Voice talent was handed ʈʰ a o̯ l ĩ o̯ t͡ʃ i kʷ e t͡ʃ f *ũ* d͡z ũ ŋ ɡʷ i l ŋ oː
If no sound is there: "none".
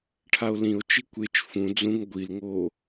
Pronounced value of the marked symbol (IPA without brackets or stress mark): ũ